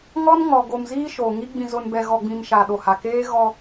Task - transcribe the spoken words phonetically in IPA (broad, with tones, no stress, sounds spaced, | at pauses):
ŋ ɔ˦ n ŋ ɔ˨ ɡ o˨ m z iː˦ ʃ o˨ ŋ i˦ ɡ͡b ĩ˨ z ʊ˨ n b ɛ˨ ɣ ɔ˨ ɡ͡b ĩ˨ m ʃ a˨ ɗ o˨ h a˨ k eː˦ ɣ ɔ˦